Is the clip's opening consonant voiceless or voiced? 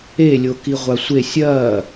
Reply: voiced